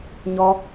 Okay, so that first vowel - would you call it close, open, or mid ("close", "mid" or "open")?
mid